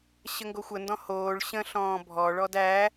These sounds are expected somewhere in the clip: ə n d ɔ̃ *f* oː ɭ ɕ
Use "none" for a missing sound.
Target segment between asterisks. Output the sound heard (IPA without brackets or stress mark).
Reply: h